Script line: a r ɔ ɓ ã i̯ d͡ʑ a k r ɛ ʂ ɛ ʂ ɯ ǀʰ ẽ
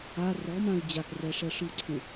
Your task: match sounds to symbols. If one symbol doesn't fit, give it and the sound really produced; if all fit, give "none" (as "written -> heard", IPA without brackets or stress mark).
ɓ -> m